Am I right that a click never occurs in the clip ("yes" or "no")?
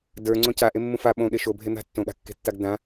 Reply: no